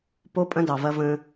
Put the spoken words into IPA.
po˧˥pʼɐ̃˧˥dɑ˩vɐ˧ və̃˧

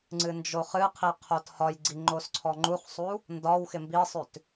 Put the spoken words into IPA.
ŋ͡ǀɨnd͡ʒoχɨqʰi qʰothɒjɡ͡ǀi ŋ͡ǃosǀʰɔŋ͡ǃuχsˤu | ndɒw xɪmbisˤʉt

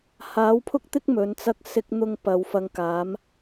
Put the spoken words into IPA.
haː˨˥wpʰʊ˥k̚t̪ɪ˥k̚ mɵ˨˧nt͡sɐ˥k̚ sɪ˥k̚n̪ʊ˥ŋ pɐ˨˧wfɐ˧ŋkaː˨˥m

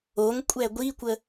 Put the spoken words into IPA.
oŋkʷʼɛ ɡʷikʷə

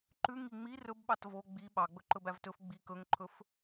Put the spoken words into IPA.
ǃʉ ŋiŋ͡mi rɵbɓɑt vo ɡ͡bi ɓɑɡ͡bɵ ǃɵbævtɵf ɡ͡bi kɵŋǃʰɵf

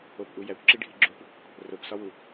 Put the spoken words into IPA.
opʔu jækʷǁiɖʱi ɡ͡ǁop | ropsɒwu

